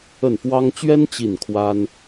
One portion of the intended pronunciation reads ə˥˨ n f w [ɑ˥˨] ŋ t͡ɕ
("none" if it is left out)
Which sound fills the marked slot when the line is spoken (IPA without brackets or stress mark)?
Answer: ɑ˦